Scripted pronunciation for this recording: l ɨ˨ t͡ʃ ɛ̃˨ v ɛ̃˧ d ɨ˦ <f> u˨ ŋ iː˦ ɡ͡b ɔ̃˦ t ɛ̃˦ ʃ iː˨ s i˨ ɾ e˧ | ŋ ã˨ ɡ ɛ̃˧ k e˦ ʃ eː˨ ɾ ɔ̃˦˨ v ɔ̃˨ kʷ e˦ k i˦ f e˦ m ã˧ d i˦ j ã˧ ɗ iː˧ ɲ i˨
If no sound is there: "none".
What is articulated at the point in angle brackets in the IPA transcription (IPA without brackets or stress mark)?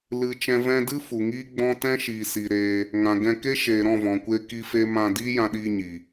f